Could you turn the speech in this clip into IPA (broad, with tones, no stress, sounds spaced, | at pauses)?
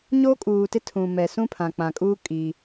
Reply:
ɲ o˦ kʼ uː˨ t ɪ˦ tʰ ũ˨ m ɛ˨ s ũ˦ pʰ ã˨ k͡p ã˨ kʼ uː˦ kʼ i˦